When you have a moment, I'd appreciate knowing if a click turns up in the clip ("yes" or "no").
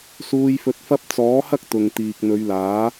no